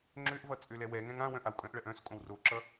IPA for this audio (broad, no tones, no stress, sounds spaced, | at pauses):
ŋ͡ǁ ø ʔ v ʌ t͡sʼ ø l ɛ w ɛ ŋ ɛ̃ ŋ ã w œ̃ ʔ a w kʼ œ̃ ʔ ɭ ɜ ʔ œ̃ s kʼ õ w r o ǁ ʌ